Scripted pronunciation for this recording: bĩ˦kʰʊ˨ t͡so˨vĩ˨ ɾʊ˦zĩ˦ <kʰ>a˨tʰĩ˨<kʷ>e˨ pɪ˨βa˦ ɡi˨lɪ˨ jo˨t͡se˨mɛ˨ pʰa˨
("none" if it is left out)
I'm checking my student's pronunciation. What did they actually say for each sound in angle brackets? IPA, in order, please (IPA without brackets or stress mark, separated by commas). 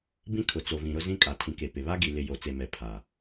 kʼ, k